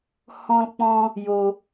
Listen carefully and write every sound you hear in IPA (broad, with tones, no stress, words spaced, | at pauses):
hɔ̃˦lk͡pɔ̃˦ | jo˦